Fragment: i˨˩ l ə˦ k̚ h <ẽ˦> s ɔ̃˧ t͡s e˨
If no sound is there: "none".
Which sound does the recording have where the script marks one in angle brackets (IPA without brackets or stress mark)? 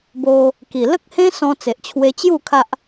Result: ẽ˦